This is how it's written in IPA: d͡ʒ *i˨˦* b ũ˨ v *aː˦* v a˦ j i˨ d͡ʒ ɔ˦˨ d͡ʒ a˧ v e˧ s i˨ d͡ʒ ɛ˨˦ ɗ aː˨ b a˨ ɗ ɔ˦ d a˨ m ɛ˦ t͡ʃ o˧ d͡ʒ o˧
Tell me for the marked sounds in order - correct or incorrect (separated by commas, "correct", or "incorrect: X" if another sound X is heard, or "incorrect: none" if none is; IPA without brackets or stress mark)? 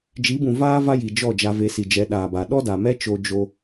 correct, correct